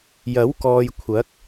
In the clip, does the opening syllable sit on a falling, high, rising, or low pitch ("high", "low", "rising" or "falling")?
rising